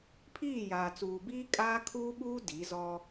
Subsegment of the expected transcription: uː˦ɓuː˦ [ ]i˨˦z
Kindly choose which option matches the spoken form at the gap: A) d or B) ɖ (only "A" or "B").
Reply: A